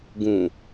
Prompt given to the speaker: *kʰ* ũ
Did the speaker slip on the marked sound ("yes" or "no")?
yes